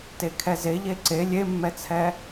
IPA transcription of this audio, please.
t e kʰ ɛ z e ʎ e ǀ e lʲ e mː ɛ t͡sʰ ɛ

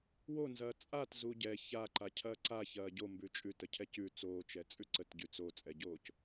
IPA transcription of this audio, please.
w o n z ɐː t͡sʼ a t z u ɟ ɛ ç a ǃ a cʰ ɐː ǀ a ç ɐː ɟ o m b ʉ t͡ʃʼ ʉ t ə cʰ ɛ c ʉ t͡s oː t͡ʃ ɛ t͡sʼ ʉ ǀ ə t ɟ ʉ t͡s o t͡sʼ ɛ ɟ oː c

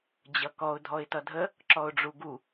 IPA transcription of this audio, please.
d͡ʑ ʌ k ɔ ʊ̯ dʱ ɔ ɪ̯ t ʌ dʱ ə | ǁ ɔ ʊ̯ ɖ͡ʐ u ɡ u

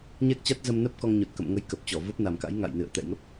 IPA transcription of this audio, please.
ɲ ɛ˦˥ k̚ t͡ɕ a˦˥ t̚ z ə˧ m n ə˦˥ p̚ k ɔ˧ ŋ ɲ o˨˩ t̚ k ə̰˧˨ m ŋ ə˨˦ j k ə˨˩ p̚ t͡ɕ ɔ˧˩ v ə˦˥ p̚ n a˨˩ m k a̰˧˥ j ŋ a̰˧˨ j n ɨ̰˧˨ ə̯ t̪ ɛ̰˧˨ j ŋ ə˦˥ p̚

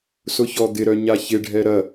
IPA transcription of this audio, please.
s ʊ ç ɔ d̪ ɪ ɾ œ ɲ a ç ɪ ɖʱ ɛ ɾ ɐ

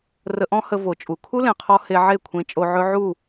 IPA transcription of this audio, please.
r ə˧ ʔ ɔ̃˦ h ə˧ v o˨ t͡ʃʼ u˨ kʰ u˦ l ẽ˨ qʰ ɔ˧ h e˧ ʕ e˦˨ kʷʰ ẽ˧ t͡ʃʼ o˧ ʕ ɵ˦ ʕ u˦˨

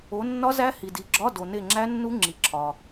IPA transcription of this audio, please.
o˨˦ nː ɒ˦˥ z æ˦˥ h i˨ d i˨˦ ɡ͡ǁ ɒ˧˥˧ d o˨ n e˦˨ ŋ͡ǁ æ˦˥ nː u˦˥ ŋ͡ǁ i˨ ǁʰ ɒ˨

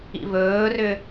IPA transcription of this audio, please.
ḭ v ɵː r ʏː

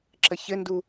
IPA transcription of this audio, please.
ǁ ə ç ɘ n d u

